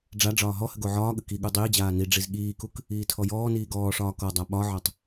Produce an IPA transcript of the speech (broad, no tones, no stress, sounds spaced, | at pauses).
ɖ͡ʐ a ɖ͡ʐ ɒː ɦ ɔ h ə ɡ o ʕ ɒː ɠ ə k i ɠ u dˤ iː d͡ʑ aː n i ɖ͡ʐ i z ɠ iː k u k | iː tʰ ɔ j ɔː n iː ɡ ɔː ʂ ɒː k ɔ dˤ a ɓ ɒ ʕ ɒ tˤ